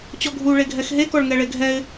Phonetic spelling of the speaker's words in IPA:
t͡ɕɔɡʱu ɭeɡʱɛxɦe kɔɭŋɛɭeɡʱɛɪ̯

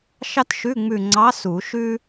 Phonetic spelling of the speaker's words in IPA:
ʃɑ˥tʃʉ˧˥˧ŋ͡mʉ˦˨ŋ͡ǀɑ˧˥ su˨˩˦ʃʉ˥

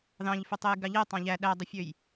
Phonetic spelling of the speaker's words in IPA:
ðɑ̃ʎføtˤej ɡɑʎe tˤɑ̃ʎæ ɗædˤɯfʲøj

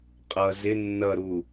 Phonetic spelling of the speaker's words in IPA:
qʼʌ zɪ nːʌɾu

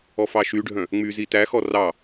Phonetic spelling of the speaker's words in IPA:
ɔfɑʃyɖʱœ̃ | ŋ͡myzi tæxɔ rɑ

